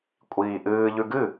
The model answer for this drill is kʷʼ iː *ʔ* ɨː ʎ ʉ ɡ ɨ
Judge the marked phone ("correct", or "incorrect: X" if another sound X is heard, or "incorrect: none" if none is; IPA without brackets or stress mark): correct